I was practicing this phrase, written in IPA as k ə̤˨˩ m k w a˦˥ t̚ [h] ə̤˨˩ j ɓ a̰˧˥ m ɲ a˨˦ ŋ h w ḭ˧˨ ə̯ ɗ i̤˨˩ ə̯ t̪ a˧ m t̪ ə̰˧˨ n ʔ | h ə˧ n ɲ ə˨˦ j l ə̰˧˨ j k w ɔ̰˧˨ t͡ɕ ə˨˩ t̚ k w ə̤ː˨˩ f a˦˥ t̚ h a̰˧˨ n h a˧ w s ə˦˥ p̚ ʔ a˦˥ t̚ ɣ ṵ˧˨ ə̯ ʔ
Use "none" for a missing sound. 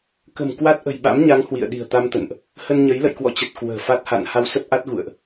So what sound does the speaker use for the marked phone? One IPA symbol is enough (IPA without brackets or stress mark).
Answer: ʔ